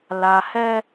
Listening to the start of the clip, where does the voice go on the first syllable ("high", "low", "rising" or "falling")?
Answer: low